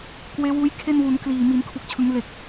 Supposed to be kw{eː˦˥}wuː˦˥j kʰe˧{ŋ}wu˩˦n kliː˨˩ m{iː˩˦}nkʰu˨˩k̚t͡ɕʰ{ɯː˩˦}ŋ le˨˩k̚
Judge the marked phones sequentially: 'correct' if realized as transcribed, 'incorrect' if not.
correct, incorrect, correct, incorrect

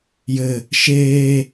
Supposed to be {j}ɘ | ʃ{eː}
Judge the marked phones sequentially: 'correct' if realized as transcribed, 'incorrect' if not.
correct, correct

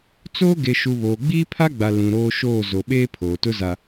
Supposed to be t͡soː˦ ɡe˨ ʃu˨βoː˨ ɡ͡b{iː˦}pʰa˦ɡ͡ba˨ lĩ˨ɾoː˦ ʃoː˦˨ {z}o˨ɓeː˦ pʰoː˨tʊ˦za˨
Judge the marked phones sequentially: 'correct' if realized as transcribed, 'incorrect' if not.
correct, correct

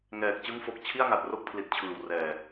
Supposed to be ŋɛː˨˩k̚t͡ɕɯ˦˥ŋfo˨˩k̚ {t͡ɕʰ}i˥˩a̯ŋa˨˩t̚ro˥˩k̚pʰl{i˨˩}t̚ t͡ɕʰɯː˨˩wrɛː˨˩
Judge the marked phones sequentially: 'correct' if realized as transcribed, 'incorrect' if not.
correct, correct

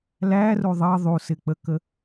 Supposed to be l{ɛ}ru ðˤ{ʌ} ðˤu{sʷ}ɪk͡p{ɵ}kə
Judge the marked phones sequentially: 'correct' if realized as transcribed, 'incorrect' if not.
incorrect, correct, incorrect, incorrect

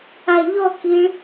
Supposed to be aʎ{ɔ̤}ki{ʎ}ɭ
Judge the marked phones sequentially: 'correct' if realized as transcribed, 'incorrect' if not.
incorrect, incorrect

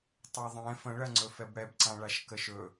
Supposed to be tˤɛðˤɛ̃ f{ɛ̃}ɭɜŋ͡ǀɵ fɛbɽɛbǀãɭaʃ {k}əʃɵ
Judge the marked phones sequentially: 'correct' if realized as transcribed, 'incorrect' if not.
incorrect, correct

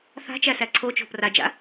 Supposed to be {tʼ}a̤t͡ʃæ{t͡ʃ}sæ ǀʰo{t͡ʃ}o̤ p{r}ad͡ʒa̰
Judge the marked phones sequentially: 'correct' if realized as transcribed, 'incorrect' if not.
incorrect, incorrect, correct, correct

